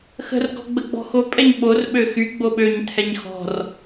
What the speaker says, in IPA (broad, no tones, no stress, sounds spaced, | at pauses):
x ə̤ r ɡ ɔ̤ ɡ͡b ə ɡ͡b ɔ̤ x o pʼ ɛ ɲ ɓ o r ɓ ø x y ɡ͡b o ɓ ø ɲ tʰ ɛ ɲ x ɔ̤ r